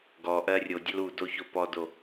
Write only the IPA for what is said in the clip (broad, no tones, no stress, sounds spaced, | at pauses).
ɡ ɔ ʔ ɜ rʲ o dʲ ɐ l u d o ç o p ɔ d o